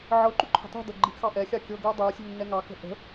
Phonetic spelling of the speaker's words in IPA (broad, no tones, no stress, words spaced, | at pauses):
ʕɤǃṳ ǃʰə̤tˤṳdɤ ɡ͡ǃiʔxɑʔɛxʲɑ kʲɤɡə˞ dˤə˞ sʲṳnːɛŋɑkə̤ ʔə̤